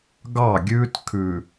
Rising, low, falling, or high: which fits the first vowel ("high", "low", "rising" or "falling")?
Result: falling